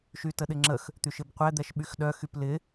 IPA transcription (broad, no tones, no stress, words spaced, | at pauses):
ʃytəɗɪŋ͡ǁəx | t̪yʃɪbqʷɛ d̪ɛʃɓyxɗœ xyplɪ